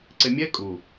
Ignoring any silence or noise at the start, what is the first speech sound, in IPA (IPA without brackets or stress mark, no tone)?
ǀ